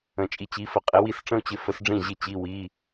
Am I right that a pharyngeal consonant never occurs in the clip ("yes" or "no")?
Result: yes